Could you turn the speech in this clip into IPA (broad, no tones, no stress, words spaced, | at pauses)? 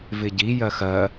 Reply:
vɪɟi jɜxɜ